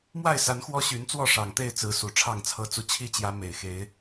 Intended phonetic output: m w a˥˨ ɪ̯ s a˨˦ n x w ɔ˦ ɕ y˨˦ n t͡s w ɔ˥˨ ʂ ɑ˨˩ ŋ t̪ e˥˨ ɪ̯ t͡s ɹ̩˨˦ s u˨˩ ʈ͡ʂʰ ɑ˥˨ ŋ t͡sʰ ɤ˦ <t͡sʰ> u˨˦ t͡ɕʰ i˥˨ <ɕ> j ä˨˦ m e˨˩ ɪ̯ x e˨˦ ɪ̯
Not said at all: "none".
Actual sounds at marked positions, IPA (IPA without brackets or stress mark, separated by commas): t͡s, t͡ɕ